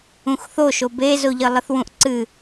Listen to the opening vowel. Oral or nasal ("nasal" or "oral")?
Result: nasal